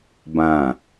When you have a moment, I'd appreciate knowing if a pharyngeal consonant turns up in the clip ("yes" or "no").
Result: no